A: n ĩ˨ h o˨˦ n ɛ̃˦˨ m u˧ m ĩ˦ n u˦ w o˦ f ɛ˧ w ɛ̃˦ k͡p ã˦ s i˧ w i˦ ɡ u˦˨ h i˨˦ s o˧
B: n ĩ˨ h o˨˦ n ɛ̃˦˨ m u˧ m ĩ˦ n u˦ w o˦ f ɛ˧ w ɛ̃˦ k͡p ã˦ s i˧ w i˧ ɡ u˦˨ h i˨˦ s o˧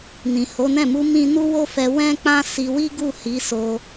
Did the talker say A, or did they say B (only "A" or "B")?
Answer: A